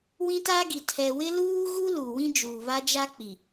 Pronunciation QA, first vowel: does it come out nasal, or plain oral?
nasal